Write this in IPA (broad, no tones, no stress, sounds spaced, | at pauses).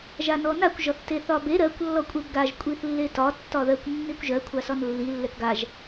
ʒ a n ɔ n a kʷ ʒ ɒ θ t e θ ɒ b e ɾ ɜ kʷ lː ɔ kʷʼ e b ɡ a ʒ kʷʼ i θ lː e t ɒ tː ɒ ð ɜ kʷ nː i kʷ ʒ ɜ kʷʰ a s ɒ n lː i lː ɛ k ɡ a ʒ